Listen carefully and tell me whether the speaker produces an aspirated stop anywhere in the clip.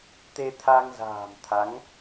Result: yes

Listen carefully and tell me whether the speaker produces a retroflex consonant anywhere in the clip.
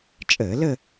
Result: no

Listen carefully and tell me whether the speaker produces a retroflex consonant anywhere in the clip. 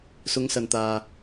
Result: no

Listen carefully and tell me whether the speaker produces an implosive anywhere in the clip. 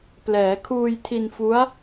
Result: no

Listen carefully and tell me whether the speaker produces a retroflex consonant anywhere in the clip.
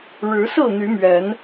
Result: yes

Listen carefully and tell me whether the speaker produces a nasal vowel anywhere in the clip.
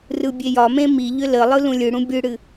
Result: yes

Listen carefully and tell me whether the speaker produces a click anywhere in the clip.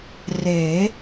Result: no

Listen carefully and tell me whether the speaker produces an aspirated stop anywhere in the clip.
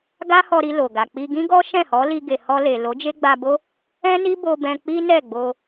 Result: no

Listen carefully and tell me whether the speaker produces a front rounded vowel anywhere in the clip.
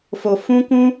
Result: no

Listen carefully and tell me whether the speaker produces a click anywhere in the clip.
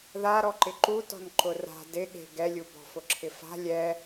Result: yes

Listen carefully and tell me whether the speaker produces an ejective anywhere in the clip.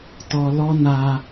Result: no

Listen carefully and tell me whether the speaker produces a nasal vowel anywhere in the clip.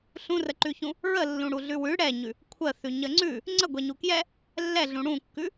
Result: yes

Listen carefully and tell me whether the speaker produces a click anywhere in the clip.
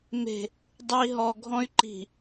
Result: yes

